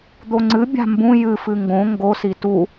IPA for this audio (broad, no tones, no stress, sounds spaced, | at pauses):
d̪ o ŋ͡ǀ ɨ bʲ a̤ m b ũ j ɨ f ɨ ŋ ɡ õ ŋ ɡ o s i t u